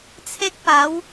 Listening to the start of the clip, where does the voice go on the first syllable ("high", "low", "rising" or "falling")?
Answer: high